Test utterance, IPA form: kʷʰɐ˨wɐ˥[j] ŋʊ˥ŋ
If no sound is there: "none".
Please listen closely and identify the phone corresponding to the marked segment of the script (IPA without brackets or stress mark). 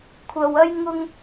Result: j